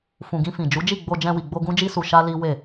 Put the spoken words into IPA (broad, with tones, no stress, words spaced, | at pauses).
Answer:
fũ˨ɡĩ˧fĩ˨ d͡ʒu˨˦d͡ʒi˦˨ɡ͡bo˧ d͡ʒɛ̃˧wi˨ɡ͡bo˧ ɡũ˦d͡ʒi˦su˧ ʃa˦li˦ we˦˨